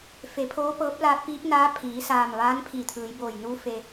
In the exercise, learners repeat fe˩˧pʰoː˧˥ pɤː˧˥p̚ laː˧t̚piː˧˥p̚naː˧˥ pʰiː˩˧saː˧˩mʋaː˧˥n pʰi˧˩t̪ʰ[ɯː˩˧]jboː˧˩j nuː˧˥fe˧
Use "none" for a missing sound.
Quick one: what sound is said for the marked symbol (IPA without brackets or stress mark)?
ɯː˩˧